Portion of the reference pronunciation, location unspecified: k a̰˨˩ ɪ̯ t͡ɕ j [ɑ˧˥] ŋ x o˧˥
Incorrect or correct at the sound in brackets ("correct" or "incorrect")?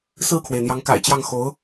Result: incorrect